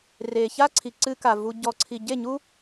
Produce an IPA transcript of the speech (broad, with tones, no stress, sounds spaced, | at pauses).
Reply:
r e˨ ç a˦ ǀʰ i˨ ǀ ɨ˧ k a˨ v u˨ ɟ ɔ˨ ǀʰ i˨ ɟ e˦˨ ɲ u˦